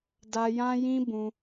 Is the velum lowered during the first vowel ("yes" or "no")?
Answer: no